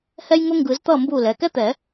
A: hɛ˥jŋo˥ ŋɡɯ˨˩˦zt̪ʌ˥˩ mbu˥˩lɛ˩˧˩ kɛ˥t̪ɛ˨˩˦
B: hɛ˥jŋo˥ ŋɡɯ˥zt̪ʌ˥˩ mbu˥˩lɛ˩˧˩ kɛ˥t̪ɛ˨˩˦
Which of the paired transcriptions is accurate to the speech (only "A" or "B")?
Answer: A